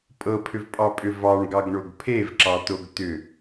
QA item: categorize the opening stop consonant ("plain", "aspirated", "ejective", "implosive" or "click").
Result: ejective